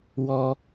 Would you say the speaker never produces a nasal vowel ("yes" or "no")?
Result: yes